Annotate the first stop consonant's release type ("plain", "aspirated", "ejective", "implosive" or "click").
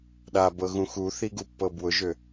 implosive